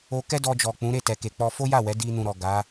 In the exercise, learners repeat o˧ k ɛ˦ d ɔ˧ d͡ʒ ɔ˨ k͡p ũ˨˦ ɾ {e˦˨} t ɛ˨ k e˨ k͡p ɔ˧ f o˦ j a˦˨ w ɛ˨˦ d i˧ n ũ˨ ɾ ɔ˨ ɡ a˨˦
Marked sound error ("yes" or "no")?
no